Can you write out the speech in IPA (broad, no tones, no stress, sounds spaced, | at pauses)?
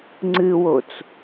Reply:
ŋ͡ǀ ɨ w o t͡s